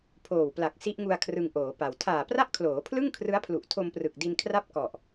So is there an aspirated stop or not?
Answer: yes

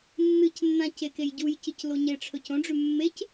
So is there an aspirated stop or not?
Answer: yes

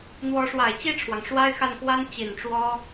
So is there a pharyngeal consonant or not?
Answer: no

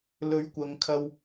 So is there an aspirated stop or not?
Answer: yes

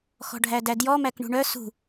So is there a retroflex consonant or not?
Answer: yes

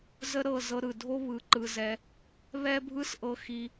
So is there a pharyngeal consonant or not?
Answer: no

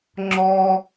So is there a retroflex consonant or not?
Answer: no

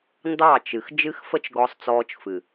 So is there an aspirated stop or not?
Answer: no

